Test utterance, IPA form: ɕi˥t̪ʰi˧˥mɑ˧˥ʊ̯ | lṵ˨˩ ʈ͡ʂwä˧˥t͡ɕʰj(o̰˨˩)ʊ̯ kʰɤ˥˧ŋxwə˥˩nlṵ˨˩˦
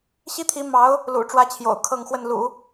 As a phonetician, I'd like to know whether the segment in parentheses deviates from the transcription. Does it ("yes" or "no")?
no